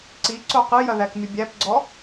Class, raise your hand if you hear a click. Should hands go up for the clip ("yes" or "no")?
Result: yes